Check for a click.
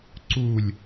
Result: present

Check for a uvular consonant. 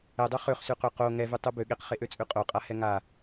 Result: present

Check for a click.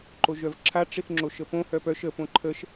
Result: present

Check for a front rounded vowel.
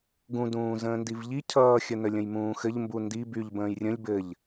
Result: present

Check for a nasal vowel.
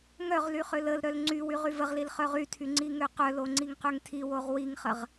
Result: absent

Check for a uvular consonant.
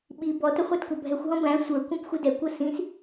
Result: present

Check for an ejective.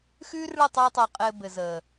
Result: present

